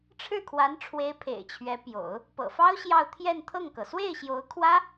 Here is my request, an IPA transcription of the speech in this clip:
ʈ͡ʂʰ ɻ̩˥˩ kʰ w a˧˥ n ʈ͡ʂʰ w e˧˥ ɪ̯ pʰ ḛ˨˩ ɪ̯ t͡ɕʰ ɥ ɛ˧˥ p j o̰˨˩˦ ʊ̯ | p ɤ̰˨˩ f ɑ˥ ʊ̯ ɕ j ɑ˥˧ ʊ̯ t̪ʰ j ɛ˥˧ n t̪ʰ ɤ˥˩ ŋ k ɤ˩ s w e˥˩ ɪ̯ ɕ j o˧˥ ʊ̯ kʰ w ä˥

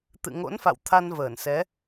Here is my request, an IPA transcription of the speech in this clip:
t̪ ɨ̰˧˨ ŋ o̰˧˥ n f a̰˧˨ w t̪ʰ a˧ n v əː˧˩ n s ɛ˨˦

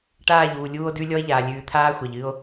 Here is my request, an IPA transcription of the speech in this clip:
ʈ aː˦˨ ʎ uː˨ lʲ uː˦ o̯ d ʉ˦ lʲ ɔ˦ e̯ ʎ aː˨ lʲ ʉː˨ t̪ʰ aː˦ xʷ ɛ˨ ʎ ɨ˦ o̯

